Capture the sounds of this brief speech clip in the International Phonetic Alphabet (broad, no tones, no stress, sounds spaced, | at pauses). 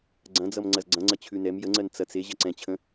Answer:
ɡ͡ǀ ɐ̃ d͡z ʌ m ŋ͡ǀ ɐ z ɡ͡ǀ ɐ̃ ŋ͡ǀ ɐ t͡ɕʰ ʉ n ɛ m j ə ŋ͡ǀ ɜ n t͡s ɐ t͡s e ʑ ɐ ǀ ɛ̃ t͡ɕʰ ə̃